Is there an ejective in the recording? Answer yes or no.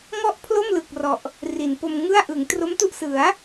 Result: no